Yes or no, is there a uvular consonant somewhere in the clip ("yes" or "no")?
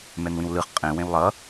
yes